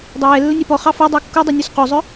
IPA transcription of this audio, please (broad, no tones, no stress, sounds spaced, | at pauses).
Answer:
dˤ æ j ɛ lː ə nʲ ɛ p ɔ χ ɑ f a dˤ ʌ w kː u dˤ o nʲ u s q o zˤ œ